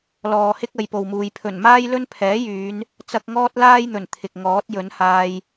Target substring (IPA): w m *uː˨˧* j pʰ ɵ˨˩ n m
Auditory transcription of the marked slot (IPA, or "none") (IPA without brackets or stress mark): uː˨˧